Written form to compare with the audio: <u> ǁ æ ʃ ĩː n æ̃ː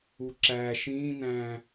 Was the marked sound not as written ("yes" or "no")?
no